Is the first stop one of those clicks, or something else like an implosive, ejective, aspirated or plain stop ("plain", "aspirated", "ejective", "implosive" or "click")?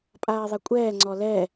ejective